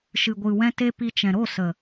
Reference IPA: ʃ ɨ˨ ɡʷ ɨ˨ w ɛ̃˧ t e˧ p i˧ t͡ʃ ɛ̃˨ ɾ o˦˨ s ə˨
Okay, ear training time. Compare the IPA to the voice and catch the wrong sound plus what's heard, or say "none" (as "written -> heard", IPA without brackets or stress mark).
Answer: none